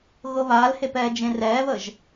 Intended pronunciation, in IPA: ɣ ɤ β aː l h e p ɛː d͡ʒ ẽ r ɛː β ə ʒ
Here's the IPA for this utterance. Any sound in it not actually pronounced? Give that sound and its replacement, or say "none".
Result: none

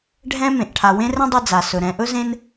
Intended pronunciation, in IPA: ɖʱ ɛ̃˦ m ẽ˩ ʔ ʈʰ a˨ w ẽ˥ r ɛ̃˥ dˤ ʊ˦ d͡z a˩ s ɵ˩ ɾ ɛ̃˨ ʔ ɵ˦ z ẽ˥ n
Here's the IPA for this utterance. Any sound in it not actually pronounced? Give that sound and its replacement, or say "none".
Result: ʊ˦ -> ɵ˦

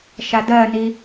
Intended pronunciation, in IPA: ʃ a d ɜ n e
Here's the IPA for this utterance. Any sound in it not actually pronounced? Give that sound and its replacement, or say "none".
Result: e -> i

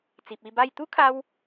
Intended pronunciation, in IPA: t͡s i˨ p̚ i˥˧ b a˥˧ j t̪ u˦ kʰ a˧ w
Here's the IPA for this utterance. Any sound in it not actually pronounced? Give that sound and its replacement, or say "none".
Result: none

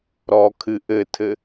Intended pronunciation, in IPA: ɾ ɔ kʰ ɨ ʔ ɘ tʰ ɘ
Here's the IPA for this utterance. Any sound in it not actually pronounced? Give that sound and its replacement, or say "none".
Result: none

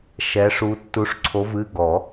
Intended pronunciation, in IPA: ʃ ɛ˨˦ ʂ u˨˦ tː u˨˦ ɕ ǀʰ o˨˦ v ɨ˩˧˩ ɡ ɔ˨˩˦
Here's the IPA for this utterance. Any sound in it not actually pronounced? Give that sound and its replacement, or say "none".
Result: ɕ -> ʂ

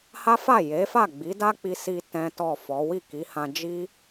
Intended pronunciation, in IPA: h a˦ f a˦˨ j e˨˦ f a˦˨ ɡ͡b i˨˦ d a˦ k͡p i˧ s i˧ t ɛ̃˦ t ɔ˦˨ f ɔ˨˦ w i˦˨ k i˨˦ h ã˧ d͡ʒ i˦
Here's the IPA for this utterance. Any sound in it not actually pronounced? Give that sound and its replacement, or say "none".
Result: none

